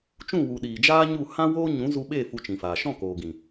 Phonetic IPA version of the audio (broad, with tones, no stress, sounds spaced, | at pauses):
t͡ʃ ũ˦˨ w u˨ ɗ iː˨ d͡ʒ aː˦ ɲ u˦˨ h ã˦ w oː˦ ɲ ũ˨˦ z u˧ ɓ e˦˨ f u˧ t͡ʃ ĩ˨ f aː˨ ʃ ɔ̃˦˨ k oː˨ ɡ ĩ˨